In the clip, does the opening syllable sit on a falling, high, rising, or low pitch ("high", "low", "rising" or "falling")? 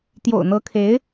low